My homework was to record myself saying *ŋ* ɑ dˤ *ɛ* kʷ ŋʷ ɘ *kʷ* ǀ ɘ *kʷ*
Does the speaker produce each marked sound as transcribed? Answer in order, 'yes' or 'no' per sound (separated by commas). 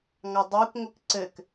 yes, yes, no, no